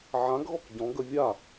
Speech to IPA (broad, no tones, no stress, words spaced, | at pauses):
ʕãɡɣɔk ɟɔ̃ɡə vʲa